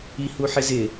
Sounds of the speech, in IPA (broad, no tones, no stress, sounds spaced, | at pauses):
i h u ħ ɪ z ɪ